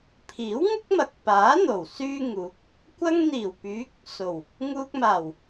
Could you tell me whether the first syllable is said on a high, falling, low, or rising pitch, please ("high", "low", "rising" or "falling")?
rising